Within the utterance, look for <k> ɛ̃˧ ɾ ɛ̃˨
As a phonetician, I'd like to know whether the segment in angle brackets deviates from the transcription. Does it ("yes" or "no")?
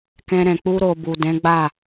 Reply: no